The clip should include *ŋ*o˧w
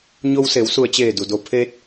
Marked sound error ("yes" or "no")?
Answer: yes